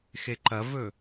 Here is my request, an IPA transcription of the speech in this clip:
xeǃɐvɵ

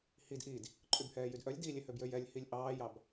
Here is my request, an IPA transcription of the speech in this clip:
hid ʔid | ǃʼybhɛːjydʔœlʲ dilʲe høbjøjɛlʲ hilʲʔɑːjɑb

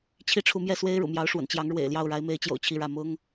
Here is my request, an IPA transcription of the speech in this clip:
t͡ɕʰi˥ʈ͡ʂʰu˧˥ mjɛ˥˩swe˥ɪ̯ɻṵ˨˩mjɑ˧˥ʊ̯ ʂwə̰˨˩nt͡ɕjɑ˧˥ŋ ɻwḛ˨˩ɪ̯ljɑ˥˩ʊ̯ ɻa˧˥ɪ̯me˧˥ɪ̯t͡ɕjo̰˨˩ʊ̯ t͡ɕʰi˥˧ɻä˥˩ mʊ˥ŋ

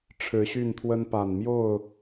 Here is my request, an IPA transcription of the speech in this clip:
ʈ͡ʂʰɻ̩˨˦ɕy˥˨nt̪ʰwə˦n pa˨˩nmjo˥˨ʊ̯

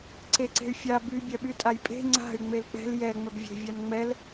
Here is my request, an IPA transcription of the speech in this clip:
ǀeǀe̤y̯fʲa by bʲœɓytʼajpʼe̤ ŋ͡ǀa̤y̯ ŋ͡melk͡pɛ̤l jɛ ŋ͡mœbvʲe̤ vʲanŋ͡mɛl

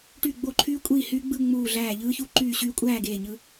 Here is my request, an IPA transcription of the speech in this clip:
ʈy˧˩ɡ͡bo˧˩ǃʰyː˧ kʷʼi˧˩hy˧ ɡ͡bɯ˥˨ŋ͡muː˧˩ɮæː˧˩ ʎɯː˧çu˧ ǃyː˧˩ɕyː˧ kʷʼæː˥˨ɡeː˧˩ɲɯ˧

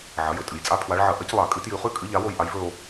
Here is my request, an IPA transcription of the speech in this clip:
ʕɐ˩˧jɵ˩˧ tʼɨ˩˧jt͡sʼa˦˨pʰwa˨˥ɭ ʕɐ˧˩˧ʔɐ˨˥c lˠa˧˩˧kʼɨ˨˥ tjʉ˧˩˧χʉ˦˨ kʼɨ˨˥ ʎa˨˥wo˦˨j ʔa˨˥jvɵ˦˨o̯

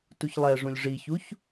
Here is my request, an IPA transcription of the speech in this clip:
tuçlˠɛʐũlʲ ʐiçuç

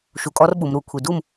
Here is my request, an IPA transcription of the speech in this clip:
ʃu˩˧kʼɔ˧˥r ɓu˩˧mɾu˧˩˧kʷʰi˩˧ du˥˩m

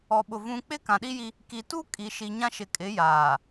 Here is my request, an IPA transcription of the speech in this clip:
ɔ˨ɓʊ˨ vũ˨k͡pɪ˦ kã˨ɗi˦ji˦ | ki˨tu˦kʼi˨ʃi˨ ɲã˦ʃɪ˨kʼɪ˨˦ jaː˨

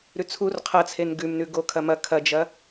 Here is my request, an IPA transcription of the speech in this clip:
ɾʉt͡sʰur qʰɐt͡sʰen ɡʉmnʉ ɡokʰɐmɐ kʰɐd͡ʒɐ

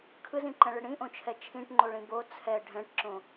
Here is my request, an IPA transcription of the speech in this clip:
kʰɯzĩǃɛ̃ɭɪ ɽĩʔõt͡ʃʰɛ t͡ʃʰĩʈŋ͡ǃoɭĩ bo t͡sʰɛ ɖʱɛ̃ʈǁõ

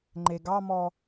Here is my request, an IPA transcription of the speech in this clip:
ŋ͡ǃeɡɑmɔ

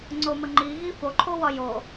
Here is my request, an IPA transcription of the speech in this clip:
ŋ͡ǀoməŋ͡ǃi ɣifoǃʰowɒ jo

